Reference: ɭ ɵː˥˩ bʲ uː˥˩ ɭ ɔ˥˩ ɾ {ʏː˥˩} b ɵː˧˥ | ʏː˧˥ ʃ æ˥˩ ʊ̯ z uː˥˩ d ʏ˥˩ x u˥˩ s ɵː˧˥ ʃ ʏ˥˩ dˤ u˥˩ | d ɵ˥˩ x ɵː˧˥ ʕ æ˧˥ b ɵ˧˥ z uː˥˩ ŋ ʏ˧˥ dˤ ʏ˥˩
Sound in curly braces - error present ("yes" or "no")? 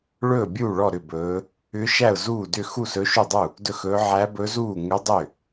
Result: yes